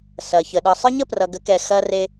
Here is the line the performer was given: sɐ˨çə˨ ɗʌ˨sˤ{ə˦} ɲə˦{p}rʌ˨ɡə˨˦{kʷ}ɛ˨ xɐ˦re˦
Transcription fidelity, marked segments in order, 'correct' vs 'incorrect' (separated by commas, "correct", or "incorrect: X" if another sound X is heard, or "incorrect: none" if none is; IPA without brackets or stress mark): correct, correct, incorrect: k